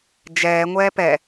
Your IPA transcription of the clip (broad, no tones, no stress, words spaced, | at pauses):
d͡ʒɛː ŋʷɛːpɛ